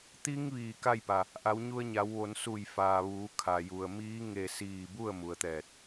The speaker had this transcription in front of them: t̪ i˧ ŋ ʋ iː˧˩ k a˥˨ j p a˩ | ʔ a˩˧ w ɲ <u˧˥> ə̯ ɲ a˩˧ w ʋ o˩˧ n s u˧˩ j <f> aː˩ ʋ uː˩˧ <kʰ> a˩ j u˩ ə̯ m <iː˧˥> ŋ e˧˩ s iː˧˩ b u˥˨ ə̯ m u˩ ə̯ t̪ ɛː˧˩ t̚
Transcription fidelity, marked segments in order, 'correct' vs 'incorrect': incorrect, correct, correct, correct

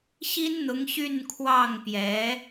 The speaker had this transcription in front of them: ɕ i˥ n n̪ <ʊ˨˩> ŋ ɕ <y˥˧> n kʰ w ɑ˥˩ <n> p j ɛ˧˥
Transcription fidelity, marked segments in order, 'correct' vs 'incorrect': incorrect, correct, incorrect

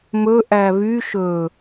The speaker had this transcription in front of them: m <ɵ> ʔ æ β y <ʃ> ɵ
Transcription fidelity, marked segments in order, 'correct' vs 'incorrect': correct, correct

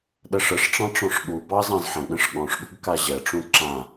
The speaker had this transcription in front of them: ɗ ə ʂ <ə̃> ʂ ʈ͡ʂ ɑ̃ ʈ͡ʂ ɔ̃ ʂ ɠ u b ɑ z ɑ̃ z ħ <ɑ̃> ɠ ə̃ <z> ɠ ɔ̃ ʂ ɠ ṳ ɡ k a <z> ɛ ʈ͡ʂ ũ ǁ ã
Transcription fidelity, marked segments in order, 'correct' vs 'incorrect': incorrect, incorrect, incorrect, incorrect

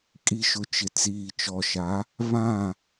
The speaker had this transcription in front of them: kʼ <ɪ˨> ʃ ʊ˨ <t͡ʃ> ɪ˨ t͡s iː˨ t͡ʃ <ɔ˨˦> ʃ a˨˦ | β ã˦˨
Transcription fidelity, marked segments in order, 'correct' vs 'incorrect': incorrect, correct, incorrect

